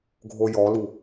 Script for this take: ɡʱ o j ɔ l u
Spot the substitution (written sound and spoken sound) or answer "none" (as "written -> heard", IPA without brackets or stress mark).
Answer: none